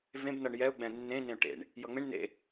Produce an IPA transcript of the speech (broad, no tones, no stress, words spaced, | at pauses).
vẽb nʌɳjɛʊ̯ ɡ͡bɛ̃nːẽ nẽʊ̯ʈḛɳ | jʌŋ͡mẽɳ nḛ